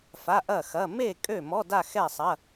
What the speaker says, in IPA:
fa˧˥˧ʔɐ˥˨xɐ˧˥˧ me˥˨ kʼø˥˨mɔ˧˥˧ da˥˨xɛ˥˨sˤɐ˧˥˧

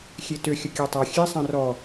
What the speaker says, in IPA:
xʲetø xʲəkʲøtˤa xʲe sˤãrɔ

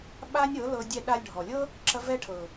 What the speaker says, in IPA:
ɓa˦nʲɤ˨˦lɤ˧ dʲɛ˧ɗa˧lʲɖʱɔ˨lʲɤ˦ | ǁɐ˦ vɛ˦ʈʰɤ˨

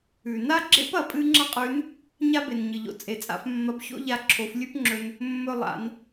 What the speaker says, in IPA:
ʉ˩ na˥ɡ͡ǁḛ˥p ɐ˩pʼɨ˧ ŋ͡ǁɐ˥qʼʉ˧˥n | ɲa˥be˩nɲɨ˩ʎo̰˩ t͡sʼe˩t͡sʼa̰˧f mːɐ˧˥bço̰˥ʎa˧ ǁʰo˩˧flʲʉ˥pŋ͡ǁɵ˧n | mːɵ˧lˠa̰˩˧n

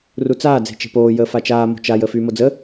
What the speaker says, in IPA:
rut͡saː d͡ze̤t͡ʃe̤poː jəːfat͡ʃaː mo̤t͡ʃaj əːfyːmod͡zə

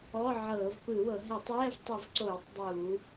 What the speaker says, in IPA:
ɔ˧˥˧ʕɤː˧˩˧vpɯ˧˩˧wɤ˧˩˧ ɦɛ˧˩˧tˤɛː˧˥˧vtˤɯ˧˩˧vǀoː˧˩˧tˤ dˤu˧˩˧

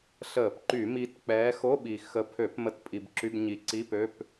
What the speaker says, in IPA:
ɬəː˧˩˧pǃy˧˩˧ mi˨˦t k͡pɛː˨˦xo˧˥˧ɓi˨˩ xə˨˦pʰø˧˩˧p mə˧˥˧tpʼi˧˩˧bǁy˧˥˧bɲi˨˦ ǀi˧˥˧pø˧˥˧p

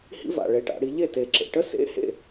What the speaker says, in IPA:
hḭ˥va̰˨˩ɭe˩˥ʈa̰˩˧ ɽi˩˧ʎe˥˩ te˨˩ǁḛ˨˩ʈə˥ sḛ˧˥˧hḛ˥˩

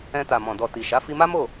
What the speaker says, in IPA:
ɛ̃˧ta˨mɔ̃˨ dɔ˨ ti˨ʃa˨˦ fi˧ma˦ mo˦˨

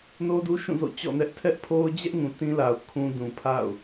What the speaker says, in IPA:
no˦du˦ʃũ˦˨ zo̰˦˨t͡ɕɔ̰˦˨nɛ˦ʔ tʰɛ˦ʔpʰo˦ʊ̯ d͡ʑɛ˦ʔŋũ˨ tĩ˦la˨ʊ̯ kʰũ˦ dũ˨pʰa̰˦˨ʊ̯

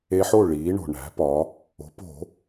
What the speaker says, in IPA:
e˧ħo˥˨ ɭiː˩˧ɳo̤˩ɳæ̤˩˧ pɒ˩˧ | o̤˩˧po̤˧˩˧

